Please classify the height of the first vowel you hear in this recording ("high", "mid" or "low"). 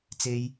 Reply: mid